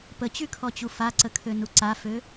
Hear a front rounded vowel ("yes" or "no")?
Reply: yes